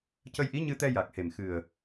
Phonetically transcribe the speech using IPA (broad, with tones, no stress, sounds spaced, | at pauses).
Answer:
c ə˧ j ʔ i˧˥ ɲ ɨ˧ t̪ ɛ˧ j a˨˩ k̚ h e˨˩ m x ɨ˨˩ ə̯